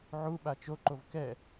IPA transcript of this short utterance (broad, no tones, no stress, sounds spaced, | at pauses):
ʕ u ɓ a t͡ʃ o ǃ o v k ɛ